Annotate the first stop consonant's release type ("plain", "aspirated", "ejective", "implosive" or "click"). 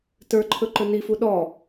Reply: plain